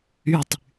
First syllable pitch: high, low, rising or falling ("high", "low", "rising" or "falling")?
falling